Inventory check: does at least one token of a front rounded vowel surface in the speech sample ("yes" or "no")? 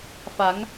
no